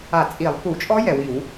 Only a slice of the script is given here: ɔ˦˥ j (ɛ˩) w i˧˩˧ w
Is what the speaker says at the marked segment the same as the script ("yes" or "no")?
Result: yes